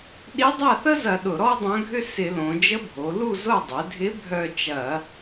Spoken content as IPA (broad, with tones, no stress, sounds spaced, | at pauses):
ɗ i˧˥ dˤ a˥˨ θ ə˥ z ɐ˧˩˧ ɗ ʊ˧˩˧ ɾ ɔ˥ dˤ œ̃˧˥ ɡʱ ʏ˥ s ɪ˧˩˧ l õ˩˧ d͡ʒ ə˧˥ bʱ o˩˧ l u˥˨ z o˥˨ dˤ ʏ˩˧ dʱ ɪ˧˥ bʱ œ˥˨ t͡ʃ ɐ˧˩˧